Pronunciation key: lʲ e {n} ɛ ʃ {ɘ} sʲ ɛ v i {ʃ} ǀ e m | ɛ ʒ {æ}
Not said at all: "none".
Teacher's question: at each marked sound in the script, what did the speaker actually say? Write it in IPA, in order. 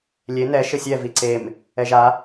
n, ɘ, none, a

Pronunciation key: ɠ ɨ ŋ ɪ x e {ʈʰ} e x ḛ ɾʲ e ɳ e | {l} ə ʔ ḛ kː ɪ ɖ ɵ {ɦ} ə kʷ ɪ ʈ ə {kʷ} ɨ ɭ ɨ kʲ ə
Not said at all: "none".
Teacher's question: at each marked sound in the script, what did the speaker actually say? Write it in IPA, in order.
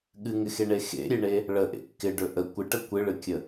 ɳ, ɭ, ʔ, kʷ

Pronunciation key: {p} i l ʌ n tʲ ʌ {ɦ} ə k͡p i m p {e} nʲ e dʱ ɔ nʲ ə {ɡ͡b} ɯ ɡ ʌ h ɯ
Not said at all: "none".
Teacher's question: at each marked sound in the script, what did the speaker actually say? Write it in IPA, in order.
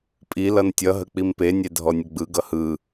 pʼ, ɦ, e, ɡ͡b

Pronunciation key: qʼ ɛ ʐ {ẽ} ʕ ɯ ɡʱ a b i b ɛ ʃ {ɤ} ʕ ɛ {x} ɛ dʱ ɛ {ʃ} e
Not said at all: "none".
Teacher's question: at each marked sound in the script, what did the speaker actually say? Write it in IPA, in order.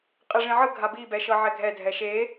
ĩ, ɤ, ɡʱ, ʃ

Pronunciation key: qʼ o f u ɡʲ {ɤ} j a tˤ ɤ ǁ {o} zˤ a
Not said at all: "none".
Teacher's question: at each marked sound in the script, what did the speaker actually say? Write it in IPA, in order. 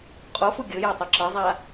ɤ, ɤ

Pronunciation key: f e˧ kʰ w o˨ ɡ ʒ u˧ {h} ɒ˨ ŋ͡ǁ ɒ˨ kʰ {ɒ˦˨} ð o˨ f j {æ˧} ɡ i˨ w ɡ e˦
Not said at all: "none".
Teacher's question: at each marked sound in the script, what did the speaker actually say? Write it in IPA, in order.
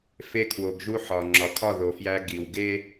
ħ, ɒ˦˨, æ˧

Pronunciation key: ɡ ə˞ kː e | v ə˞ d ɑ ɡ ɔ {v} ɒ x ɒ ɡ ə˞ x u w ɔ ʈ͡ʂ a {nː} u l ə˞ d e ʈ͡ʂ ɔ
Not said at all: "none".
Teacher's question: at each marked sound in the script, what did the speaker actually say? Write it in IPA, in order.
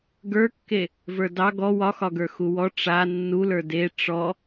w, nː

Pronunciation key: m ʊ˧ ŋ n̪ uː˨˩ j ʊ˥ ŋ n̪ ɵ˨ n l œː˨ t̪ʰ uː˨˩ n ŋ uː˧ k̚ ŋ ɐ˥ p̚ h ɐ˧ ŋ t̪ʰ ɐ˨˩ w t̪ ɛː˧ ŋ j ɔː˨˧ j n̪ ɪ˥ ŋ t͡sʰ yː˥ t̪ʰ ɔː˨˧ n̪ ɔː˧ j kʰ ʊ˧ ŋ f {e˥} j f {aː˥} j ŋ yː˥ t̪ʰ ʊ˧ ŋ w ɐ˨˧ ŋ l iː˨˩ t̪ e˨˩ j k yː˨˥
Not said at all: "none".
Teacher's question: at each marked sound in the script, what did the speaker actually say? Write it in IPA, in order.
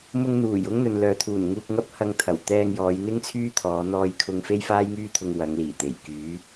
e˥, aː˥

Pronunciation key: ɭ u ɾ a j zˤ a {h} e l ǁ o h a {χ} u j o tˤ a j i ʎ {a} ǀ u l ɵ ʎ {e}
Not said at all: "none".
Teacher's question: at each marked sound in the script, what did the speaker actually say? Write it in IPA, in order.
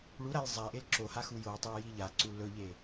ʔ, x, a, e

